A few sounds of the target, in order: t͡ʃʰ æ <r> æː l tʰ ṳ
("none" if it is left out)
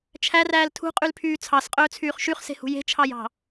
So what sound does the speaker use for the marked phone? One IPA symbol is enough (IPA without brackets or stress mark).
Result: r